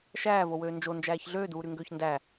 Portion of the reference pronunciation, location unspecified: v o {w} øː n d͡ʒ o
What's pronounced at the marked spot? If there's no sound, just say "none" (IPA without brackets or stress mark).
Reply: w